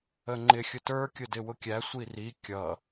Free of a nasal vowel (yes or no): yes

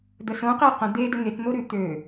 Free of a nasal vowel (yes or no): no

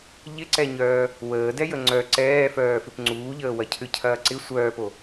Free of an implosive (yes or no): yes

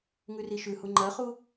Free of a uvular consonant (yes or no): no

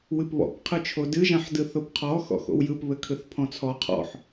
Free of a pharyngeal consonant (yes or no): no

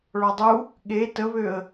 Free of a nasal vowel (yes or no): yes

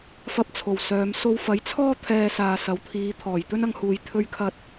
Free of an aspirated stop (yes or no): no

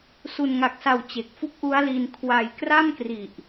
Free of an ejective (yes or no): yes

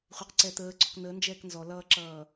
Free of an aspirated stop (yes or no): yes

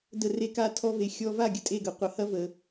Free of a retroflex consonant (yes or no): yes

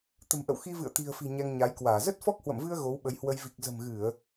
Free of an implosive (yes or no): no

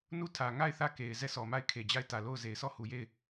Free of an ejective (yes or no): yes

